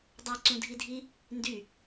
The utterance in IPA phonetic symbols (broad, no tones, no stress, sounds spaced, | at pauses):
dˤ a ǀ ũ dʱ i dʱ i | n d y